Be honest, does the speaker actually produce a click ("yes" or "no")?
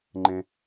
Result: yes